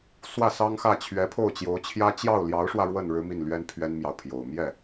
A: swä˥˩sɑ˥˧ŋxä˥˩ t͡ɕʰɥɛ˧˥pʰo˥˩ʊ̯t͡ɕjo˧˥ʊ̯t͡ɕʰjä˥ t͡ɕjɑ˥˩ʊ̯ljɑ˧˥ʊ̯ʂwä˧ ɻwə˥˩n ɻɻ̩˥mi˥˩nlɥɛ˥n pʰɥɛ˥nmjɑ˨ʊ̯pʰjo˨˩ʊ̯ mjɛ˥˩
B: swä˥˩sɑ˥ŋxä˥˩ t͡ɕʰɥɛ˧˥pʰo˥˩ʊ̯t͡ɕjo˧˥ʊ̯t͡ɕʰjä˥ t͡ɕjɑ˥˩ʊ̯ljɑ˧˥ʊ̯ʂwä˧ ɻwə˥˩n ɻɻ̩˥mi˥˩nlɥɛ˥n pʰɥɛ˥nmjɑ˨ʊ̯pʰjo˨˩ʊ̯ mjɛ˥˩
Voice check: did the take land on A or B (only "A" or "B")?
B